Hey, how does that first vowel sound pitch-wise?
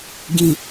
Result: low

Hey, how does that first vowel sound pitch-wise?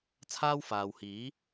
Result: high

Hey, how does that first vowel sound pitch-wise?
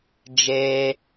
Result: high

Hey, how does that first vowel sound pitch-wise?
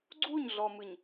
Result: falling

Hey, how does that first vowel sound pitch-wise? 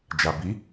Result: low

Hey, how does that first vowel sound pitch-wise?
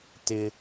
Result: high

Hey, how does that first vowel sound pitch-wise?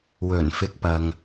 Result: low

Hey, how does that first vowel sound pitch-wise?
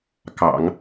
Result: low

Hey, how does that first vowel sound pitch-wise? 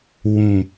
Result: low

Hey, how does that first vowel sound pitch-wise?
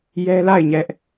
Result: high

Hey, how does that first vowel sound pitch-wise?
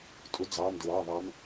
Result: rising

